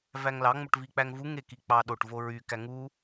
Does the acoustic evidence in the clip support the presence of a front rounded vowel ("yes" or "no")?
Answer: yes